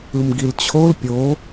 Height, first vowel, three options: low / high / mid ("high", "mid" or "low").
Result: high